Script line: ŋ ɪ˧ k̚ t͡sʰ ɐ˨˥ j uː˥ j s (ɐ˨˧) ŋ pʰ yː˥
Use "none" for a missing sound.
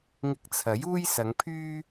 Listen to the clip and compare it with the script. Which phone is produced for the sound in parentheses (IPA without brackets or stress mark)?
ɐ˨˧